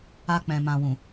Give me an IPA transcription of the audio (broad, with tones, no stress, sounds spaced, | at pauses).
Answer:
a˧ k͡p ɛ̃˨ m ã˨ w ũ˨